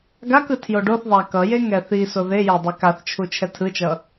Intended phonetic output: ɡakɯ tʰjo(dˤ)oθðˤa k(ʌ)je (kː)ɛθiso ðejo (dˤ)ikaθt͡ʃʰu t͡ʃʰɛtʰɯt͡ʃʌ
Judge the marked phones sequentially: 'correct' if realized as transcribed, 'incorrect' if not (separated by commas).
incorrect, correct, incorrect, correct